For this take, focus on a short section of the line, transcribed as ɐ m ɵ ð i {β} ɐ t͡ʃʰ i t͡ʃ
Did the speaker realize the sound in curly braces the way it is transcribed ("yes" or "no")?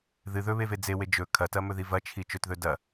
no